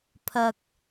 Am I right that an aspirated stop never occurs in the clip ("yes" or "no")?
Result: no